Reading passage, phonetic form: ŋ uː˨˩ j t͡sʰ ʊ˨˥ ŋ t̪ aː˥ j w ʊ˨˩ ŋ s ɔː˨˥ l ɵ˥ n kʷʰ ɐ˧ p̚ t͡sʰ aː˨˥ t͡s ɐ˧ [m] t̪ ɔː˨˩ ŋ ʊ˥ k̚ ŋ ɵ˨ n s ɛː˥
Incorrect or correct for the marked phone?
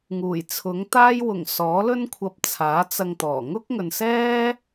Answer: incorrect: ŋ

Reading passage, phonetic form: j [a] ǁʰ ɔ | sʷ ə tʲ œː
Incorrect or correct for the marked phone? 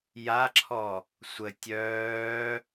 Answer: correct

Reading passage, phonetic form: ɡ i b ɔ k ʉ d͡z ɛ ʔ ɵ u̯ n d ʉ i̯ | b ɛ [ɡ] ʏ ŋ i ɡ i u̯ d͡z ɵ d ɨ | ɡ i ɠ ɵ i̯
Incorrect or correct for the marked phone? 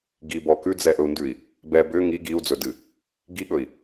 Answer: incorrect: b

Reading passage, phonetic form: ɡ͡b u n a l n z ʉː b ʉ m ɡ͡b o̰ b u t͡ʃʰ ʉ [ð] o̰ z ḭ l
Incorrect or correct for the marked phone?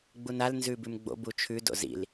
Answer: incorrect: d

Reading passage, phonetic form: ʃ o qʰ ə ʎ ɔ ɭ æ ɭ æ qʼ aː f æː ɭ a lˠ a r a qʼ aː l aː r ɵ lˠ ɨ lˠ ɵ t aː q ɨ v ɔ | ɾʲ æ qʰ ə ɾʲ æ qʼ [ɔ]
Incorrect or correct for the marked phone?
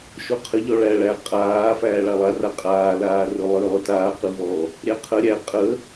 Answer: incorrect: ə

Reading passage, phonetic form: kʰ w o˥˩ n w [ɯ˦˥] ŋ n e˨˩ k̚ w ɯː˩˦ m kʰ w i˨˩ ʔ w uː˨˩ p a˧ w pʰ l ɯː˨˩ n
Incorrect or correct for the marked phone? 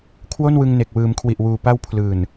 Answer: incorrect: ɯ˧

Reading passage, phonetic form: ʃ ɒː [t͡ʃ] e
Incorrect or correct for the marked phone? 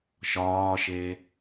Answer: incorrect: ʃ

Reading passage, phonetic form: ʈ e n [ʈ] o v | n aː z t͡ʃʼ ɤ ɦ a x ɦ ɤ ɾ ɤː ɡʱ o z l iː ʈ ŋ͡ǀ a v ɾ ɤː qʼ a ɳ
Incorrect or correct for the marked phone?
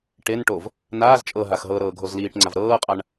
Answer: correct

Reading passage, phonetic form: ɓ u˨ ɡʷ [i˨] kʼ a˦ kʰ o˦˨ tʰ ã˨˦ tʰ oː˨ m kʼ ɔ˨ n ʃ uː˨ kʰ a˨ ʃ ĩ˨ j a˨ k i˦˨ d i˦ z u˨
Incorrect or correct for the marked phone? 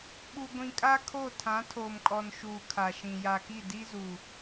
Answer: incorrect: ĩ˨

